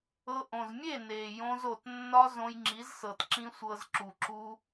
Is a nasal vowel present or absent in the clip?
present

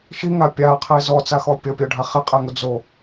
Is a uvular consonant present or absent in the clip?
present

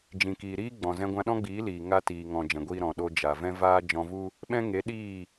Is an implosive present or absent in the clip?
present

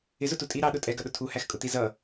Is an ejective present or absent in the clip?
present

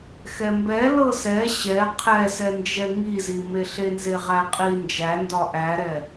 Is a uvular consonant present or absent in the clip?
present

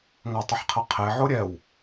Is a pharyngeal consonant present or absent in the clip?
present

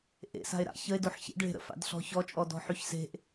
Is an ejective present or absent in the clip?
present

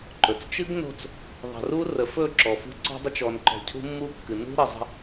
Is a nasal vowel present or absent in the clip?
absent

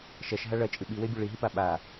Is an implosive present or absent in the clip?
present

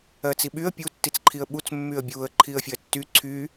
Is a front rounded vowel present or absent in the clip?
present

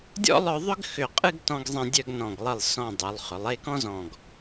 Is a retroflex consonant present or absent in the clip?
absent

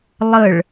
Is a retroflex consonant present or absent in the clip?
present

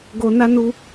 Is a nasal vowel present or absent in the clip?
absent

